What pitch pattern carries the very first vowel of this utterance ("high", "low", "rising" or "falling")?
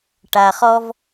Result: low